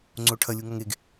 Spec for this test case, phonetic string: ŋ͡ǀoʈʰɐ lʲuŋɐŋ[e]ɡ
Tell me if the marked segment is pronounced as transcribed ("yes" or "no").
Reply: yes